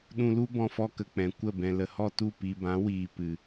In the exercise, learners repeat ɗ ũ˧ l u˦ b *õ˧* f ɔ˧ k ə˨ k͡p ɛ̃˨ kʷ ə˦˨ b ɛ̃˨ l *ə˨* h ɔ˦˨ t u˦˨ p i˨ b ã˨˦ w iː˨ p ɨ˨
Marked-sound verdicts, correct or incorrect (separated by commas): incorrect, correct